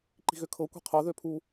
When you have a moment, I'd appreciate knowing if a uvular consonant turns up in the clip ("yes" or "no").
yes